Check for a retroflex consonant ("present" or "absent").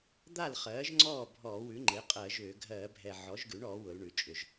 present